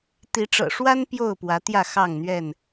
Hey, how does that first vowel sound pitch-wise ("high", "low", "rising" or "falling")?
rising